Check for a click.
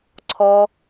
present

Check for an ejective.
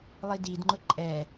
present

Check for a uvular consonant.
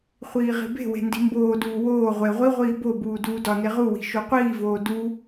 present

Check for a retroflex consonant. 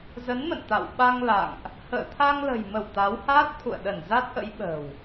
absent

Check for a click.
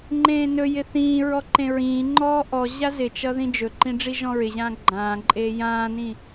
present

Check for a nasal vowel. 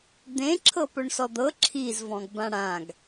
present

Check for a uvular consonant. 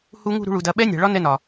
absent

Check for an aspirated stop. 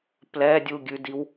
absent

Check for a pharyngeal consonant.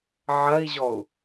present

